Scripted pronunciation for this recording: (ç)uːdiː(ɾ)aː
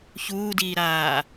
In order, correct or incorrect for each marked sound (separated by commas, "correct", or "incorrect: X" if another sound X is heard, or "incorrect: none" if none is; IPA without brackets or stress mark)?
correct, correct